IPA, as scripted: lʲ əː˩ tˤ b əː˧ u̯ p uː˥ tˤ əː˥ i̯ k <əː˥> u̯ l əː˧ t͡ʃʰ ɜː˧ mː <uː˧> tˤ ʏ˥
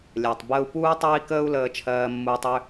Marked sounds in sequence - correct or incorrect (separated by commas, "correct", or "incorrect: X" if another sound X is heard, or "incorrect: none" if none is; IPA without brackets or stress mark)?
correct, correct